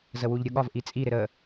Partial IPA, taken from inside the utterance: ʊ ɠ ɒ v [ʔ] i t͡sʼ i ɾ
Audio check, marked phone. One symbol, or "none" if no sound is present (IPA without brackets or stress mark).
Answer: ʔ